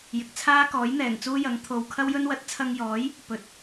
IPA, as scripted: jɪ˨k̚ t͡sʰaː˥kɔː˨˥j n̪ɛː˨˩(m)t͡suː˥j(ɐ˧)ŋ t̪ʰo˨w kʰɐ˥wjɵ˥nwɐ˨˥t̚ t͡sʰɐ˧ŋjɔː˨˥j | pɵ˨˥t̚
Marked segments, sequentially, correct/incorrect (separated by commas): incorrect, incorrect